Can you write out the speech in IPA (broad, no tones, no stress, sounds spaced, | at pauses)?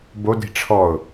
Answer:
b o d i̤ ʈ͡ʂʰ ɔ ʊ̯